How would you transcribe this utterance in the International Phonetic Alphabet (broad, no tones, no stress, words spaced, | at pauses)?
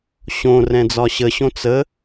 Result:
ɕõrɛ̃ d͡zɒɕəɕõ t͡sə